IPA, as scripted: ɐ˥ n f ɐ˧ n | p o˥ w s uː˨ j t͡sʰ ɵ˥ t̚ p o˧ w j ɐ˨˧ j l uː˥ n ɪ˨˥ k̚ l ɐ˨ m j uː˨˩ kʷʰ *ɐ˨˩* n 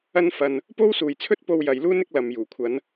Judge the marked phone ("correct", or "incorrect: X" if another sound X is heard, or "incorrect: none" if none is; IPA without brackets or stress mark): incorrect: ɐ˨˧